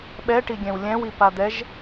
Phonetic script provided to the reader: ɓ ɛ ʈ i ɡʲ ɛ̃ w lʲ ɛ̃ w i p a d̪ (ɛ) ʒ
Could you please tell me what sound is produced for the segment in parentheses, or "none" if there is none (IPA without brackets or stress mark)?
ɛ